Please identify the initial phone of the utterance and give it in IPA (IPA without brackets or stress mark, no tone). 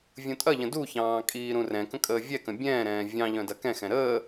vʲ